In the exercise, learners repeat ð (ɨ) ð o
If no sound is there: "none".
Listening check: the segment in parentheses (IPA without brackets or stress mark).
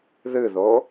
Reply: ɨ